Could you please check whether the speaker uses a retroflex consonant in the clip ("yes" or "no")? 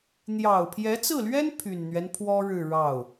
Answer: yes